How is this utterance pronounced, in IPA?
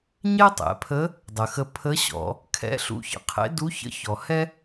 ɲ ɛ˥ tˤ ɛ̰˩˧ pʰ ə˧˥ | dˤ ə˩ x ə˧ pʰ ə˧˥ ɕ ɔ̰˩˧ | kʰ ɛ̰˧˥ ɬ ṵ˧ ç ə̰˩˧ qʰ ḛ˧˥ d u˧˥ ç ə̰˧˥ ç ɔ˩ h ɛ˥

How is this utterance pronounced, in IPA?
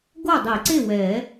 ɡ o˥˨ dˤ i˨˩˦ ǀ e˥˨ w ɛ˨˩˦

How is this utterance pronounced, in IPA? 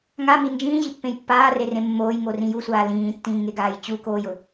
ŋ a m i n d͡ʒ ĩː ʑ i pː ẽ j pː aː r e r ẽ mː oː j ŋ o r ĩ j u sʷ aː l ĩː tː ĩː ŋ e ɡ aː j t͡ɕ u k oː j ʊ

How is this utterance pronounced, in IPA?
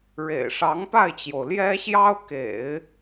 ɻ ḛ˨˩ ɪ̯ ʂ ɑ˧˥ ŋ p a˥˩ ɪ̯ t͡ɕ j o˩ ʊ̯ l j ɛ˥ ɕ j ɑ˥ ʊ̯ k ḛ˨˩˦ ɪ̯

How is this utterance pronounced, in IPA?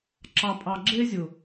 ǁ ɑ˨ pʼ ɑ˨ ɡ͡ǁ e˦ zʲ ʊ˨

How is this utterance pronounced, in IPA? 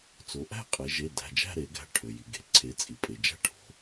t͡s o˩˧ ʔ æ̤˥˧ qʼ e˩˧ ʒ e˩˧˩ d æ̤˩˧˩ d͡ʒ æ̤˥˧ ɾ e˩˧ ɡ æ̤˩˧˩ ʈʰ ø˩ j i˩ ɡ e̤˩ ǀʰ e˩˧ t͡sʼ i˩ pʼ e˩ d͡ʒ æ̤˥˧ ʈʰ o̤˩˧

